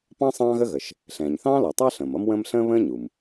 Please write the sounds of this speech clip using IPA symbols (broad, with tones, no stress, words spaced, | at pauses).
pɑ̃˥ sˤɑ̃ː˥ɣə˥ɣə˩ʃ | ɬɛ̃ː˩ɲθɑ̃ː˥lɔ˩tˤɑ˥ ɬə̃ː˩mʌ˥mwə̃ː˥m ɬə̃ː˥βə̃ː˥ɲu˩m